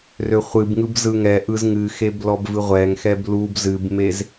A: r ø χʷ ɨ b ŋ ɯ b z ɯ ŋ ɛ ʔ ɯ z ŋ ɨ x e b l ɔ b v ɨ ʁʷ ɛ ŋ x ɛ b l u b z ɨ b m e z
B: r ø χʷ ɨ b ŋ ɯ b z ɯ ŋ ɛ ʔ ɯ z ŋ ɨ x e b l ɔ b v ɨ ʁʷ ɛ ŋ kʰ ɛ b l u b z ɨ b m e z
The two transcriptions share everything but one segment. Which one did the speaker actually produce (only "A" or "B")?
A